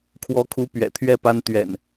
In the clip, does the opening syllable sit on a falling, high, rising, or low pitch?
rising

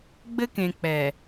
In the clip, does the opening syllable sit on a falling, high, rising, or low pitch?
high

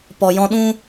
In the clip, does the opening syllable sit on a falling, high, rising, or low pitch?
low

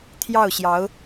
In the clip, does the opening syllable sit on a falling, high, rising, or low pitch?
falling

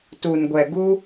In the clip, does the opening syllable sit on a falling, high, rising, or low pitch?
low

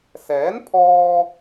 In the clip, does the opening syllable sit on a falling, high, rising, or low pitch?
rising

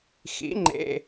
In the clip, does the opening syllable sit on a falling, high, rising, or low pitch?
rising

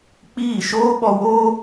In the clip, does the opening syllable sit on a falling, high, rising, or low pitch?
falling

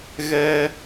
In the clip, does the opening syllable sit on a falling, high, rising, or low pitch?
high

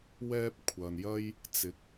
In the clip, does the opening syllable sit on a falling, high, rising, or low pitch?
high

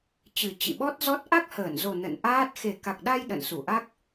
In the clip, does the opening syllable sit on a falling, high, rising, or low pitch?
low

